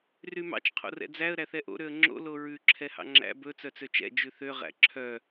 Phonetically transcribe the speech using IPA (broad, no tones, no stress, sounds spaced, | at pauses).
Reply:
r y m ɑ̰ t͡ʃ qʰ o̰ r ɛ̰ d͡z æ ə̯ ɾ æ θ ɛ ʔ o̰ ɾ ø ə̯ ŋ͡ǁ o̰ l o ɹ ʉ ǁʰ ɛ h ɑ̰ ŋ͡ǁ æ̰ b ɵ t͡s œ t͡s ø t͡ʃ ɛ̰ d͡ʒ ʉ θ ø ʁ æ̰ ǁʰ œ